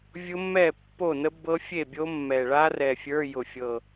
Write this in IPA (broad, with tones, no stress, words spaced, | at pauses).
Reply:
vʲʊ˦˥mːɛ˥˩ pːo˥˩ nə˦˥ bɤ˦˥fʲe˥˩bʲo˦˥mːɛ˨˩ ɭa˦˥rɛ˨˩ fʲə˞˧˥˧ jʊ˨˩fʲɤ˨˩